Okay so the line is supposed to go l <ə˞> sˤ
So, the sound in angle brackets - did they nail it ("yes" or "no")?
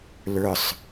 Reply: yes